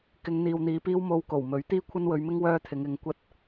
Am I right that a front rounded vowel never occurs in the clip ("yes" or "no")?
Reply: no